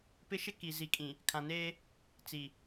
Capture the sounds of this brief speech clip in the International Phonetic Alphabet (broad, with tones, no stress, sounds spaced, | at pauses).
p ɪ˦ ʃ ɪ˦ k i˨ z i˨ kʼ ĩ˨ | kʰ ã˨ n eː˦ | t͡s i˨